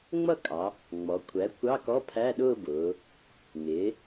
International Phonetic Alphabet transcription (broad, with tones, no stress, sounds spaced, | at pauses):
ŋ͡m ʌ˥˧ kʼ ɑ˩˧ | ŋ͡m ɔ˩˧ kʷʰ æ˩˥ kʷ ɑ˧˥˧ k ɔ˧˥˧ pʰ æ˧˥˧ ɗ ʊː˥˧ b ʊː˩˧ | ŋ ɪː˩˥